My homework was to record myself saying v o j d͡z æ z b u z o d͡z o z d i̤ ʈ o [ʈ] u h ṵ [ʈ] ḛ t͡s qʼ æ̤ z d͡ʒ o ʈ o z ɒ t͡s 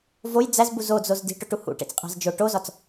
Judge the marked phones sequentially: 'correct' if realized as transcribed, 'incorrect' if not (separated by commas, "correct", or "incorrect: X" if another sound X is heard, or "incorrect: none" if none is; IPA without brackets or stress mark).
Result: correct, correct